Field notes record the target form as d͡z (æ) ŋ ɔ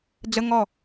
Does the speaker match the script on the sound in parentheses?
no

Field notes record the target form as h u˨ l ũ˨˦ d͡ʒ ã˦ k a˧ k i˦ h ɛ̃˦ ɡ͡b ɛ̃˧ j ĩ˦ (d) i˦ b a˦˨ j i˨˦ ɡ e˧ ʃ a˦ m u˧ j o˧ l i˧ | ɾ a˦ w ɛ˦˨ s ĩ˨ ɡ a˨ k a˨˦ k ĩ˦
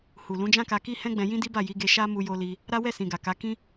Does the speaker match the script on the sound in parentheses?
yes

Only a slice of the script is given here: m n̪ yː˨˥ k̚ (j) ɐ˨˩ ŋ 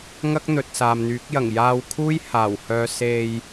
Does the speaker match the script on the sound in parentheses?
yes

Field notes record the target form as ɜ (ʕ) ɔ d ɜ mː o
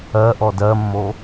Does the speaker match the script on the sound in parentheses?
no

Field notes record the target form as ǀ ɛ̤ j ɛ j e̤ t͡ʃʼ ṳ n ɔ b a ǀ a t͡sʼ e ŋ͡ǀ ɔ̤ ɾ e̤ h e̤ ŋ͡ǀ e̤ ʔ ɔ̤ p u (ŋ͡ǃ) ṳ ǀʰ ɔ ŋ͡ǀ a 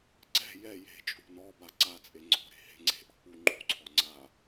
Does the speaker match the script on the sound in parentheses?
yes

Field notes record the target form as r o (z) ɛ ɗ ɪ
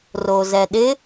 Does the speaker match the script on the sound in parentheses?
yes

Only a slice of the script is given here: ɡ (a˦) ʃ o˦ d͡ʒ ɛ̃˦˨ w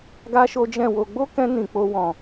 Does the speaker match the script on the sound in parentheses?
yes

